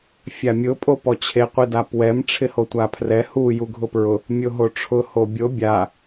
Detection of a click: absent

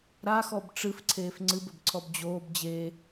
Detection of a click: present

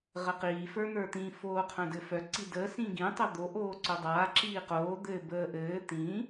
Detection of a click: present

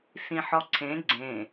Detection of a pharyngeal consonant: present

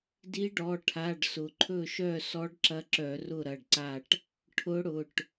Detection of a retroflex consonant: present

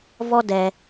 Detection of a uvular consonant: absent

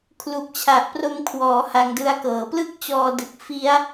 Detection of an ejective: absent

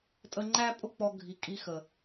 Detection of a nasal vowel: absent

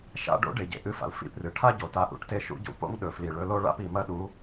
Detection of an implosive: present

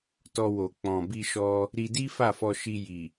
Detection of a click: absent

